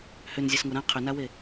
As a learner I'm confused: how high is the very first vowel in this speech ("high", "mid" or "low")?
high